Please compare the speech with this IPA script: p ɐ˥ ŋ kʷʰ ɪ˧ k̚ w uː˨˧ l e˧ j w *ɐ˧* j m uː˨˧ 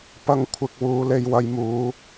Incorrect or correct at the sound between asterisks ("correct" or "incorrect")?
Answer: correct